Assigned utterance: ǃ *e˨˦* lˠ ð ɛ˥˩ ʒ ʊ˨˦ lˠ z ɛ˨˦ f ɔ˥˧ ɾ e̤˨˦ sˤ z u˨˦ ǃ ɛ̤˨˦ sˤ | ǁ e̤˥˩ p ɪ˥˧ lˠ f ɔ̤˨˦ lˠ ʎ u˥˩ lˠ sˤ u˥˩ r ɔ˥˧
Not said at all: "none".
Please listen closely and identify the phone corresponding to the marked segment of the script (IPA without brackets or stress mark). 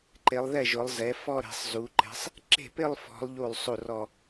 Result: e˨˦